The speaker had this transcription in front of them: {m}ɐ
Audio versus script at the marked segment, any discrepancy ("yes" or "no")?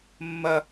yes